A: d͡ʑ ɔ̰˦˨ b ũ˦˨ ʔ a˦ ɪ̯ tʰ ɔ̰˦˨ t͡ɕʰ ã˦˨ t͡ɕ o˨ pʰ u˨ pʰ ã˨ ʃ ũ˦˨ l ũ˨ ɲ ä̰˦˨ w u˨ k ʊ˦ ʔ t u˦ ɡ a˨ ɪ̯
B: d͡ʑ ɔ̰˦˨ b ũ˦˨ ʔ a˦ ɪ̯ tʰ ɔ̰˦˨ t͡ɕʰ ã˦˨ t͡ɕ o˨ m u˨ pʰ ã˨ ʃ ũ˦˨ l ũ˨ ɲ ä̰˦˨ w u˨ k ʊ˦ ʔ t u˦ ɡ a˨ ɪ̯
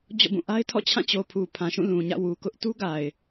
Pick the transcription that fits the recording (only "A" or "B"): A